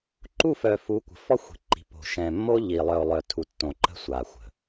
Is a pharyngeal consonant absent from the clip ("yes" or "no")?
yes